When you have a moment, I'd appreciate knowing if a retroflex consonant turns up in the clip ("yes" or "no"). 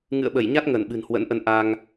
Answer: no